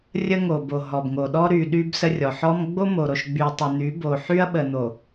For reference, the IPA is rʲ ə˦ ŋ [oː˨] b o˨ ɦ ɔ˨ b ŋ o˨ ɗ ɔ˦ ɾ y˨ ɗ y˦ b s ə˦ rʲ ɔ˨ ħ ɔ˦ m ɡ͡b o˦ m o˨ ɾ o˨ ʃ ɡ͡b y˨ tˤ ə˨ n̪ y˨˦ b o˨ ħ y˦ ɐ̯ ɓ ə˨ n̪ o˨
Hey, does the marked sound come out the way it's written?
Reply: no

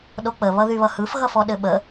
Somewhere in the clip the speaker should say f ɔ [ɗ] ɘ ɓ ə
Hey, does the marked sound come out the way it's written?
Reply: yes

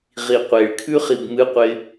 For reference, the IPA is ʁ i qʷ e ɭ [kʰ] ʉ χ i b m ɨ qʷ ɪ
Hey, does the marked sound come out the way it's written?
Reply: yes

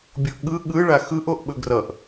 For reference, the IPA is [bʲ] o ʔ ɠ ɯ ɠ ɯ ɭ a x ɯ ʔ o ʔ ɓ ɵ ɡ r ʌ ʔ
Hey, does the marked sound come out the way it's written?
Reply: yes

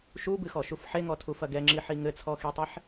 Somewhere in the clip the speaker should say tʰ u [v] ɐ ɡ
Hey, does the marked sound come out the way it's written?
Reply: no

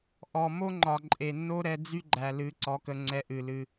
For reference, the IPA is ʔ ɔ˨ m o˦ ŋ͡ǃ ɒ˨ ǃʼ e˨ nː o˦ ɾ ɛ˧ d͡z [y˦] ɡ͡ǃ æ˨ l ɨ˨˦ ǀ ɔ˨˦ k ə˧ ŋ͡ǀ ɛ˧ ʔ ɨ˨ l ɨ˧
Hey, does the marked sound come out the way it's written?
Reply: yes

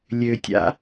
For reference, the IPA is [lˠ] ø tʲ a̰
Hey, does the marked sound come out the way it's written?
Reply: no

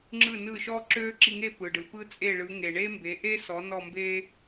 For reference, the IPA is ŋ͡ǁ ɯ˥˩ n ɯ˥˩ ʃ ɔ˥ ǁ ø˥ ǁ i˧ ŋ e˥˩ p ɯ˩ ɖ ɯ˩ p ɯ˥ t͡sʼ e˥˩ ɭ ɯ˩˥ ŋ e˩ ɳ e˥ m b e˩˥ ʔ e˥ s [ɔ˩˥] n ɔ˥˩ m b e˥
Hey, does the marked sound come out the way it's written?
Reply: yes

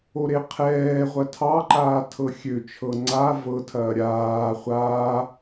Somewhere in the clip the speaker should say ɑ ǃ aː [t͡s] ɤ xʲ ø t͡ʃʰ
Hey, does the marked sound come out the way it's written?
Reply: no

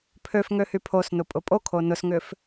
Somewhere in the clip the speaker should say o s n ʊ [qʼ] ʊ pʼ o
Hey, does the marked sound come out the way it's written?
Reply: no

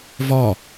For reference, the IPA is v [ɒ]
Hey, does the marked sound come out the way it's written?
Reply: yes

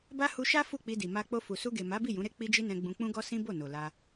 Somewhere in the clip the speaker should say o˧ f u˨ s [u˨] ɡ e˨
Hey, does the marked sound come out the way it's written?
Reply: no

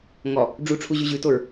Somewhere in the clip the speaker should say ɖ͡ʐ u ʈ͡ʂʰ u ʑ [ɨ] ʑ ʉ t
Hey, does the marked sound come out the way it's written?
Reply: no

